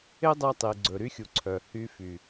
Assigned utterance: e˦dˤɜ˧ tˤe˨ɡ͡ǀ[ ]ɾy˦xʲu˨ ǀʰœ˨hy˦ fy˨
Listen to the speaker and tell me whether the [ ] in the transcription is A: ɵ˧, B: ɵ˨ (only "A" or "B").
B